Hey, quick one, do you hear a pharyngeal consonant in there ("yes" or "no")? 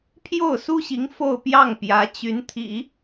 no